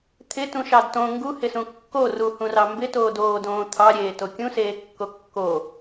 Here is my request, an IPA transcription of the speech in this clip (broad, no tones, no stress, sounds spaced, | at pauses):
t̪ʰ ɪ t ũ ʃ ɑ d t õ ŋ ɡ u h ɪ s ũ kː o r u h ũ r ɑ m b ɪ t oː d oː d õː t̪ʰ ɑ ɾʲ eː t o kʲ ũ s eː kː o kː o